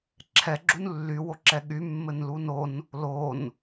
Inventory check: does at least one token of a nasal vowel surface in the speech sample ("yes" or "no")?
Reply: no